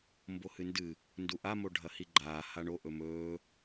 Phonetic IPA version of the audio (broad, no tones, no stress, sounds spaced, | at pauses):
m b o h ɨ n d ɨ | n d u ʔ a m o ɖʱ ɐ h i ɡ͡ǃ aː h a ɳ o ʔ ɵ m ɵː